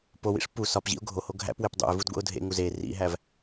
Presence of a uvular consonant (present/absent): absent